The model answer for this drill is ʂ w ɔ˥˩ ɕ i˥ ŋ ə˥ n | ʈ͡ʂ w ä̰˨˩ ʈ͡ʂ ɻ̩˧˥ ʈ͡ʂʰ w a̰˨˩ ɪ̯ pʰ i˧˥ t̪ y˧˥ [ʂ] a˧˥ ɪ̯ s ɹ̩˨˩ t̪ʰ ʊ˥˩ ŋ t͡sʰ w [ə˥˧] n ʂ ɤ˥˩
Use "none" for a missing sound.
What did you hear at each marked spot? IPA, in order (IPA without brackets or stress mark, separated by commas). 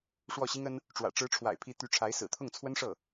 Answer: ʈ͡ʂʰ, ə˥